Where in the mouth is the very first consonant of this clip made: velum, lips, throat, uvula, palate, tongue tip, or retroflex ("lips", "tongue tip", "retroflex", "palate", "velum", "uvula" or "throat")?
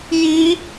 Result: palate